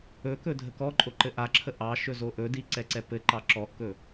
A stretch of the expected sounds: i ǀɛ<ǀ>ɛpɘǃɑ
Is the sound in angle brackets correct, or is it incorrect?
correct